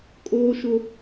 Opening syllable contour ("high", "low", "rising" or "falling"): high